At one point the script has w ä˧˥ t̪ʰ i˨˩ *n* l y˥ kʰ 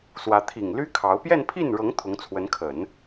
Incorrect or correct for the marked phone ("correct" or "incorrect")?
incorrect